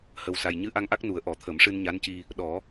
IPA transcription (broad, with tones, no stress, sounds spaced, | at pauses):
h ə˨˩ w s a˨˩ j ɲ ɨ˧˥ ʔ a˧ ŋ ʔ a˦˥ k̚ n u˨˩˦ ə̯ ʔ ɔ˨˩˦ t̪ʰ ə˨˩˦ m ʂ ɨ˧ n ɲ a˧˥ n c i˧ | ɗ ɔ˨˩˦